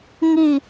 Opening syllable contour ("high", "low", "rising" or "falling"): falling